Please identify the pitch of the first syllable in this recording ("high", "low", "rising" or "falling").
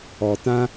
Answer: low